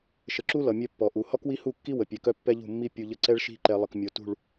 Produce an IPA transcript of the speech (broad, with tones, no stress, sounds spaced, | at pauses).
ʃ ə˨ ǁ u˦ l ʌ˨ mʲ œ˦ pː ɔ˨ ʔ u˨ h ɔ˦ k w i˦ h u˦˨ kː i˦ w ə˨ pʲ ɛ˨ k œ˦ pː ɛ˦ ʎ ṳ˦˨ mː i˦ pʲ u˨ ʎ ə˨ ǀ ɛ˦ ɭ ʃ i̤˦˨ ǃ ɛ˨ lˠ ə˨ k mʲ o˨ t ṳ˦˨ ɭ